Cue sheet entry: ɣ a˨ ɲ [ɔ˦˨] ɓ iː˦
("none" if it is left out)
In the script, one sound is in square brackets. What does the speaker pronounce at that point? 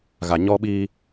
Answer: ɔ˦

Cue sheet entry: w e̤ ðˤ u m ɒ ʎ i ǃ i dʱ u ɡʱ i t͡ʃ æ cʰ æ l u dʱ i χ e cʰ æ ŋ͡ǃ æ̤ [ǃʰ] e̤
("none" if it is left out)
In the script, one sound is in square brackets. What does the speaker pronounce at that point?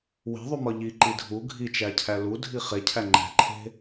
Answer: ǃʰ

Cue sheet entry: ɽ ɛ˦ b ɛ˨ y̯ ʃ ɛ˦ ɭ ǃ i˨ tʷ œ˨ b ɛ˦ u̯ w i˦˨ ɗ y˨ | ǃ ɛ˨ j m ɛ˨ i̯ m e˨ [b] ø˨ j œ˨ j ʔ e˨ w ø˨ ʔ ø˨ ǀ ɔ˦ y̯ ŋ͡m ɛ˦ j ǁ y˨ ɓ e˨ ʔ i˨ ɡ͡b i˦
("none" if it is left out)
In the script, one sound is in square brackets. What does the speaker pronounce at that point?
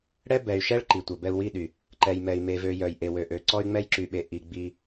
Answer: v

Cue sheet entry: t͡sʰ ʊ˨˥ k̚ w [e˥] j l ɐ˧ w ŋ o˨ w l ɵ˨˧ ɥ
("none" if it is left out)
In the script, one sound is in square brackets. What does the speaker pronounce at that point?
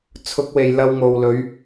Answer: e˨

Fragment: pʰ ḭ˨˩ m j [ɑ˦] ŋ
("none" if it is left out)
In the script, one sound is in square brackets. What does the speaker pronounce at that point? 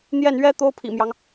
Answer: ɑ˦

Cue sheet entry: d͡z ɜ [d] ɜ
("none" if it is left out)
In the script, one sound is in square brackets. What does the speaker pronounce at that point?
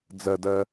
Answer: d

